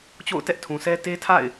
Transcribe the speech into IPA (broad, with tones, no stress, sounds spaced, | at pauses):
t͡ɕ o̰˦˨ ʊ̯ t ɛ˦ ʔ tʰ ũ˨ sʰ ɛ˦ t e˦ tʰ a̰˦˨ ɪ̯